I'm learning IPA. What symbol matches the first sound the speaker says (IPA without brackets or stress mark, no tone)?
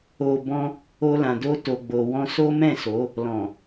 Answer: o